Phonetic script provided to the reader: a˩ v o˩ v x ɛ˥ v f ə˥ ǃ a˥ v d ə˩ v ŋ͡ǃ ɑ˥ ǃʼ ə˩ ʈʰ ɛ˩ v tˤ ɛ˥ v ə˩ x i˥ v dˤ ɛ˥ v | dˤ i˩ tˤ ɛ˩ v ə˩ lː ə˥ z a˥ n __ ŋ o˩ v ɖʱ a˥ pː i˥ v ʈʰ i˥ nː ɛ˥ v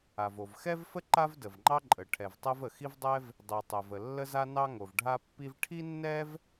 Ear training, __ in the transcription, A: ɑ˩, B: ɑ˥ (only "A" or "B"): B